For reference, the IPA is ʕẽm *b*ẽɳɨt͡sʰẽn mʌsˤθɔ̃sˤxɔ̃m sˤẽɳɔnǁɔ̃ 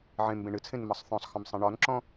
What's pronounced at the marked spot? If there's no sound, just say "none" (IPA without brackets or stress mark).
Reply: b